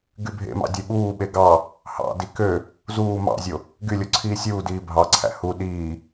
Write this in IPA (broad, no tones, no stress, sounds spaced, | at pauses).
ɡ y bʱ ḛ m ɑ̰ dʲ e ɓ uː ɓ e ɡ ɑ | h ɑ̰ d i k ø | z uː m ɑ̰ zʲ o | ɡ y lʲ o ǀʰ iː sʲ uː d iː bʱ ɑ ǀʰ æ̰ h u ɗ iː